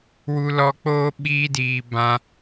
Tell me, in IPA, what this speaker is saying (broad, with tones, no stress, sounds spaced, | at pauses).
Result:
w u˧ l ɔ˧ k͡p oː˦ ɓ iː˧ d iː˨ b ã˧